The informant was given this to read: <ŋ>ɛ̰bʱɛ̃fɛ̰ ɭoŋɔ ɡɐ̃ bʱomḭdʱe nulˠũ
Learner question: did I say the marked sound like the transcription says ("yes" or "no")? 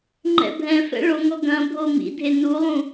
no